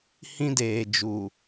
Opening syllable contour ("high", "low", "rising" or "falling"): high